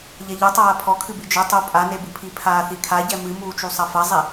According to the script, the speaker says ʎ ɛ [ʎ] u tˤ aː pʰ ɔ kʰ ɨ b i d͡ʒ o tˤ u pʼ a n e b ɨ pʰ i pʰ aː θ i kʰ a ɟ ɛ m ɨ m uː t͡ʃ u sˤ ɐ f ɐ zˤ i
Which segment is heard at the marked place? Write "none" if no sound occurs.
ʎ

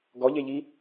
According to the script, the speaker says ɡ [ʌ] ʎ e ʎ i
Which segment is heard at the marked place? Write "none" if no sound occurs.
ɔ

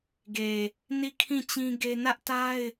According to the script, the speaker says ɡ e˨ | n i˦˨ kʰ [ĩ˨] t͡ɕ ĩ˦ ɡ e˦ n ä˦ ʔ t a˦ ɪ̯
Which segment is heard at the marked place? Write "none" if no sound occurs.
ĩ˦˨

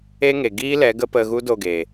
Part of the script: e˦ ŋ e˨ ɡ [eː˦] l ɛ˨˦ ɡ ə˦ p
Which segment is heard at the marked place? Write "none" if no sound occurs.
iː˦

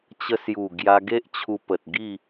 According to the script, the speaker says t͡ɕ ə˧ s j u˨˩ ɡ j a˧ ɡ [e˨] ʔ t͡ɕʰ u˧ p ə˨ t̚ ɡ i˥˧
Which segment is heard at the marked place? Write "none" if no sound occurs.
e˦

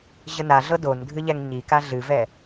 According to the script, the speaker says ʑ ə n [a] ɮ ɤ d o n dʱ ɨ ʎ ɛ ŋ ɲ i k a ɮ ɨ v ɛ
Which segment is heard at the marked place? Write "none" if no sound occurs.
a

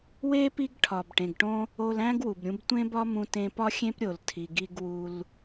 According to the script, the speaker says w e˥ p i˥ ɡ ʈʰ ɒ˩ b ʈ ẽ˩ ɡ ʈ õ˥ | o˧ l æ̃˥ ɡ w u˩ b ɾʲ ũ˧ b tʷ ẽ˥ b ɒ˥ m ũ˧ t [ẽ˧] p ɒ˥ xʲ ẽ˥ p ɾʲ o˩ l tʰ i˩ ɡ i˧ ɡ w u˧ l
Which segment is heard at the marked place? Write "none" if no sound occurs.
ẽ˧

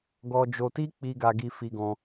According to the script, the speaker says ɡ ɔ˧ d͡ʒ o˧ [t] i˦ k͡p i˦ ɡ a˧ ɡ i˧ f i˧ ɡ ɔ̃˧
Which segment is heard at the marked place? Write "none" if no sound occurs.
t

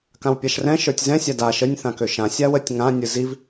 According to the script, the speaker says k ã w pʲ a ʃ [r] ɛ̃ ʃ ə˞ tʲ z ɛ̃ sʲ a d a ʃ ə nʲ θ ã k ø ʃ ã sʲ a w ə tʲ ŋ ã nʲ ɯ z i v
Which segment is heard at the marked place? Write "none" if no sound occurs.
r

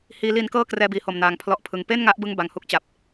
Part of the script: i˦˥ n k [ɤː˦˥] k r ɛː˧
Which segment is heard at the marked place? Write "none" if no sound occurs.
ɤː˥˩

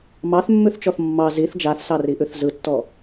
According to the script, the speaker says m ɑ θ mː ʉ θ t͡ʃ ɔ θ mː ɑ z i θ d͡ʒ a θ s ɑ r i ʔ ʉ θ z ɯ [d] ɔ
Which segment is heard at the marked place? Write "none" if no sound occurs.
tː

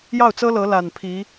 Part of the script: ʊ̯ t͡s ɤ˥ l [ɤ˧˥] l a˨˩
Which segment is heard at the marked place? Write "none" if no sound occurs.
ɤ˧˥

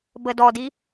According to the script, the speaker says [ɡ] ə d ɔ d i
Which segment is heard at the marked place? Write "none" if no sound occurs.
b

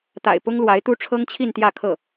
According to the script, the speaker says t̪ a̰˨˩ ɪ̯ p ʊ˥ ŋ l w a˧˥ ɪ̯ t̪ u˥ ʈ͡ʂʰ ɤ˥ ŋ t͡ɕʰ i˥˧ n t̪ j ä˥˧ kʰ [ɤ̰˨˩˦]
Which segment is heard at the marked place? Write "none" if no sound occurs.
ɤ˥˩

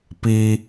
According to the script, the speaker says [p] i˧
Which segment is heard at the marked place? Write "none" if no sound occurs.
p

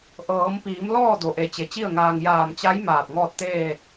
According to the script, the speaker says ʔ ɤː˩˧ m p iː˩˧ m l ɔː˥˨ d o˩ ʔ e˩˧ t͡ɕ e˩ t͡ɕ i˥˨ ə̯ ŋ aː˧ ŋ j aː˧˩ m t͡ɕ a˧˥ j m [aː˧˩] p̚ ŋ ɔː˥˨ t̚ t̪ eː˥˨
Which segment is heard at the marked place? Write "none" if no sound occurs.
aː˧˩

